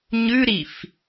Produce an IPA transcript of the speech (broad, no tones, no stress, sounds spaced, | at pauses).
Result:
ɲ ʉ ɾ i f